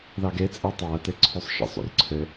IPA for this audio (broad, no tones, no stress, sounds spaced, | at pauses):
ð ɑ ɡ e t͡sʼ e tˤ ɑ ɐ̯ t e ǀʰ u sˤ ʃ ḭ sˤ ṵ r ǀʰ ɘ